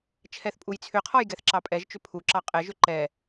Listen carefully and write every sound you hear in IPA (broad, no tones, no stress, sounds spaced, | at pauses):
t͡ʃʰ ɛ θ pʼ u j t͡sʰ ʏ qʰ ɔ j ɡ ɛ θ ǁ ɑ pʼ ɛ ʒ t͡ʃ ʏ pʰ u ǁ ɑ qʼ ɛ ʒ ʏ ǃ ɛ